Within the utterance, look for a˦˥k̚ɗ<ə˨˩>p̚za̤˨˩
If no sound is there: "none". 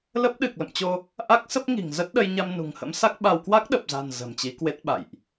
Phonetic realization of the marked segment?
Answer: ə˨˩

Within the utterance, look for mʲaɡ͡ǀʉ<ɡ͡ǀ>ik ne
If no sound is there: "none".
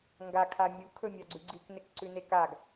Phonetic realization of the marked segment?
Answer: ɡ͡ǀ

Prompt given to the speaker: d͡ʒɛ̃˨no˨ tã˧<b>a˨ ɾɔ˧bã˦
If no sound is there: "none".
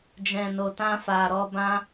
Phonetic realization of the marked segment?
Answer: f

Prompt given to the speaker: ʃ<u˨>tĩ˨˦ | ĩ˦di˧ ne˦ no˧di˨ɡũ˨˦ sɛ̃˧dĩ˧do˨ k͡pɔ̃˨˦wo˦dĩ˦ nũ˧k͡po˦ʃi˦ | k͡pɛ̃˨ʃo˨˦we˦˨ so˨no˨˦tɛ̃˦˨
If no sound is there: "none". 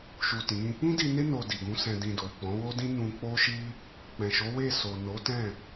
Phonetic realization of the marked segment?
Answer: u˨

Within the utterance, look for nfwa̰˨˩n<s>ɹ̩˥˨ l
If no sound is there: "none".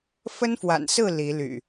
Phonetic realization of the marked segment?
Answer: s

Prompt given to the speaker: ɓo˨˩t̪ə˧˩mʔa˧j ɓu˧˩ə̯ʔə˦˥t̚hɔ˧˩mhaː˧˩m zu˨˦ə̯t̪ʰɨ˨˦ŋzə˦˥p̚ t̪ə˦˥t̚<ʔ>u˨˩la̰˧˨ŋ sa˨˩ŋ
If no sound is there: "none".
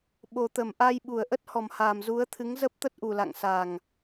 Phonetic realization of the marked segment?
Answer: ʔ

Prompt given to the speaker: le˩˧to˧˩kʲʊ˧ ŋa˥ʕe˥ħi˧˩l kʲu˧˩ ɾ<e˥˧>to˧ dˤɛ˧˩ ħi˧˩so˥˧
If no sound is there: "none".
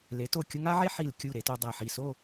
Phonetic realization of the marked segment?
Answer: e˩˧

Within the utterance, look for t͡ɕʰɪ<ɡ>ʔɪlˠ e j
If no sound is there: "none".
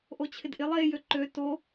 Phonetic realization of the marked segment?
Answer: d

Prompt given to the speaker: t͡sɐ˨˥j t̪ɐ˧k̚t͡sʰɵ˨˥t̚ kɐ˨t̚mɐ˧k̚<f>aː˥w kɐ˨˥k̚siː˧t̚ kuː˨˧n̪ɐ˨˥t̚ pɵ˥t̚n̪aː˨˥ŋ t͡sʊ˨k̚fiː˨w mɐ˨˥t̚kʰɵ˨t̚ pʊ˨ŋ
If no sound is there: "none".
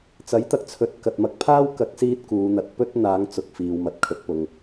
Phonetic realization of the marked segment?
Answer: pʰ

